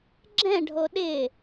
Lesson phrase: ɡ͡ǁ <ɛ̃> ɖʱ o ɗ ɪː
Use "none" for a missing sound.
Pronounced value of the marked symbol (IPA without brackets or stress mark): ɛ̃